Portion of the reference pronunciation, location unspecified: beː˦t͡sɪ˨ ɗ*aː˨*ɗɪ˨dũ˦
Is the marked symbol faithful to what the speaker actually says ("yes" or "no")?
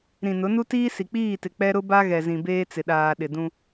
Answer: yes